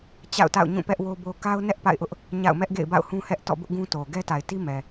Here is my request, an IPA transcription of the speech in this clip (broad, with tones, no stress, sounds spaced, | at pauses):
t͡ɕ a̰˦˨ ʊ̯ t a̰˦˨ ʊ̯ ɲ ũ˦˨ p ɛ˦ ʔ w o˦ b o˦ k a˦ ʊ̯ n ɛ˦ ʔ p a̰˦˨ ɪ̯ ʔ ʊ˦ ʔ | ɲ a̰˦˨ ʊ̯ m ɛ˦ ʔ ɡ ḛ˦˨ ɪ̯ b a̰˦˨ ʊ̯ h ũ˦ h ɛ˦ ʔ t ɔ̰˦˨ b ʊ˦ ʔ ɡ ũ˦ t o˨ ɡ ɛ˦ t a˨ ɪ̯ t i˦ m ɛ˨